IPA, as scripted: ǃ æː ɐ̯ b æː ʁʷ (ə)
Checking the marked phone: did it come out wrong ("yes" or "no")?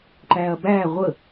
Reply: no